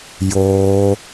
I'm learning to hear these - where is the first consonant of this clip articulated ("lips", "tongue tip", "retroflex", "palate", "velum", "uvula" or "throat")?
palate